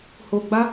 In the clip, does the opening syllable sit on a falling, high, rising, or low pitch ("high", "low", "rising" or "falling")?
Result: low